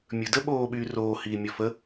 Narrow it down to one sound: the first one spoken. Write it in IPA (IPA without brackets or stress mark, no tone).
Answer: mʲ